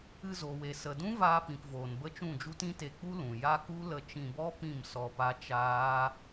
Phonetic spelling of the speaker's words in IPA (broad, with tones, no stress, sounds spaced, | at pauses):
ɨ˧ z o˨ w e˨ s ə˨ d ũ˦ v aː˧ p ĩ˨ p v oː˨ n b ə˦ t͡ʃ ũ˦˨ d͡ʒ u˦ t ĩ˦ t e˧ k͡p u˦ l ũ˨ j a˦ k u˦ l ə˧ t͡ʃ ĩ˧ b ɔ˦ p ĩ˦˨ m s ɔ˧ p a˦ t͡ʃ aː˦